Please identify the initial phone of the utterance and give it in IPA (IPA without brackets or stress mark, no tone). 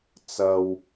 t͡s